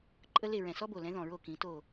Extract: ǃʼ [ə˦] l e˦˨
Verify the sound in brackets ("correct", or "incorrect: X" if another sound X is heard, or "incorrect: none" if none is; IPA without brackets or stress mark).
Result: correct